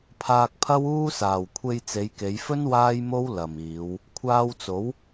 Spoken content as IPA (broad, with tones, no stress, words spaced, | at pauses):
pʰaː˧k̚pʰɐ˥wuː˥saː˨w kʷʰe˧jt͡se˨˧jke˨˧jfɵ˥n waː˥jmo˥w lɐ˨miː˨˧w | kʷʰaː˧wt͡so˨˥w